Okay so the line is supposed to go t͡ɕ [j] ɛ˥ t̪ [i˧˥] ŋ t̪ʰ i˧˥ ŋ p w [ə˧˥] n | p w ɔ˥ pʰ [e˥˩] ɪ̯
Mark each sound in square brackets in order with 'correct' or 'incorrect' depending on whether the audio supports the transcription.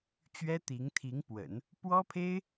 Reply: incorrect, correct, incorrect, incorrect

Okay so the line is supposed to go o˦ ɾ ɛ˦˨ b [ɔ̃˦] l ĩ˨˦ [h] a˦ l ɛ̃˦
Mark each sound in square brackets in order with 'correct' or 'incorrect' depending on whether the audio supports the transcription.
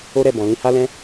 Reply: incorrect, correct

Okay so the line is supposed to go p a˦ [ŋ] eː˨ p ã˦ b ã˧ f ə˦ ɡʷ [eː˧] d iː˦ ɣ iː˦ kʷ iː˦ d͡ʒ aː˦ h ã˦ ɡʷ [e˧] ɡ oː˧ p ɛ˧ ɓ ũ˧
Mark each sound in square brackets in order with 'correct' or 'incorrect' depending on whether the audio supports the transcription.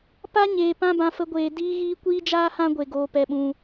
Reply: incorrect, correct, correct

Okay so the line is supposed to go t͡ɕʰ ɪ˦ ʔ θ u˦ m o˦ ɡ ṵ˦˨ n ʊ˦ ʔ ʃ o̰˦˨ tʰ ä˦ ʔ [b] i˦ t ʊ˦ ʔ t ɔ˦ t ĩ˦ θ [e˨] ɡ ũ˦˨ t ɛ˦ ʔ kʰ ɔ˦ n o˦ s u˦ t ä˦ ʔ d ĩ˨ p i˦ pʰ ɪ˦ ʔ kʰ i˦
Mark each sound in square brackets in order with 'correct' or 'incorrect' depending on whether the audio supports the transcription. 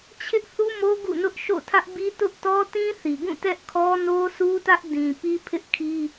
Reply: correct, incorrect

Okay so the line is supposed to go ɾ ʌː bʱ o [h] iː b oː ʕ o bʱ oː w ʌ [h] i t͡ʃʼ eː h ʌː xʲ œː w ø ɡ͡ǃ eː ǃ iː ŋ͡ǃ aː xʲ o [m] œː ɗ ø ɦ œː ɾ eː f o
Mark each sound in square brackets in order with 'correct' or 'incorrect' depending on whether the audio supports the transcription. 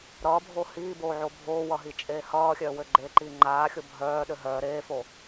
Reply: correct, incorrect, incorrect

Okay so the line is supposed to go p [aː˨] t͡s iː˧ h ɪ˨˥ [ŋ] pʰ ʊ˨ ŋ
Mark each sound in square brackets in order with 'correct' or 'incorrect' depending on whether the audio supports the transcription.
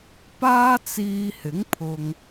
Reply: incorrect, correct

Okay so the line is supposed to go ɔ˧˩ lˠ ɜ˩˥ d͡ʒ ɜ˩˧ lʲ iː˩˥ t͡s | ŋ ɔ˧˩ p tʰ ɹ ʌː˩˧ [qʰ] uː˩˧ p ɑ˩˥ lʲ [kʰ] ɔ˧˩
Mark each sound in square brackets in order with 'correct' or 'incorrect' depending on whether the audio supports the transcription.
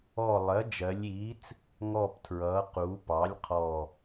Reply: incorrect, incorrect

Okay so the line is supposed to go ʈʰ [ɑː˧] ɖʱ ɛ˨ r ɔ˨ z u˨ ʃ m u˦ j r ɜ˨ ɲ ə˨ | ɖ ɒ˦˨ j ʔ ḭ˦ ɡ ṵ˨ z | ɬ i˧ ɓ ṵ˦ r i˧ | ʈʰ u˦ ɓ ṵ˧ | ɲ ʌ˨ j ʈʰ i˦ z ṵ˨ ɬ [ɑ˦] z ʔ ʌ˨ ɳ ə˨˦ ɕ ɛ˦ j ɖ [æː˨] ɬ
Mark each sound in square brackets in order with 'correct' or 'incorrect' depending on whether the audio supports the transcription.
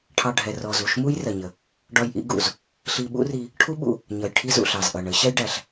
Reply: incorrect, incorrect, incorrect

